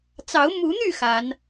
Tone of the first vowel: rising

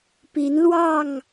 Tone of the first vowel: rising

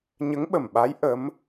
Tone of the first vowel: rising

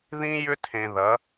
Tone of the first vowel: high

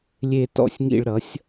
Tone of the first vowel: falling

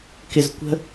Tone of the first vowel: low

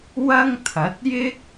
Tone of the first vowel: high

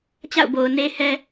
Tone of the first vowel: falling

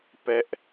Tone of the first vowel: high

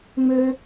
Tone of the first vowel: high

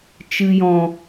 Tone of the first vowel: low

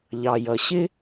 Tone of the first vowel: low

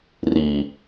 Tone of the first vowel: low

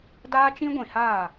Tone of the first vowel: high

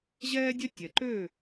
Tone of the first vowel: high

